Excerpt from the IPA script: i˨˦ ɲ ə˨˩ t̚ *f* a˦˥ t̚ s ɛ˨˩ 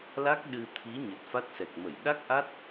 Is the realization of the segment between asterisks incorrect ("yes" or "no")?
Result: no